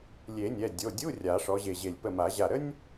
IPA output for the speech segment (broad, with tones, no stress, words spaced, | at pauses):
lʲe˨˩˦nʲɛ˩˧˩ dʲo˩˧˩dʲu˧˥˧ rʲa˨˩˦ʂɔ˨˦ʑe˧˩ʑe˧˩lʲ pə˧˩ma˨˩˦ʑa˧˩ɾə˥nʲ